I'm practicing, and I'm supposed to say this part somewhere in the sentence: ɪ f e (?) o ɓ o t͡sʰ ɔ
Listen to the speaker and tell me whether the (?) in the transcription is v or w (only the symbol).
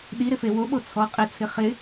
w